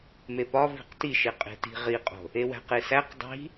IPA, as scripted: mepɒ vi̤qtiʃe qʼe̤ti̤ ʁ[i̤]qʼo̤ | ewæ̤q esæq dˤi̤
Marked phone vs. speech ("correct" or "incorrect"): incorrect